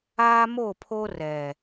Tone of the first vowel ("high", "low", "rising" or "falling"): high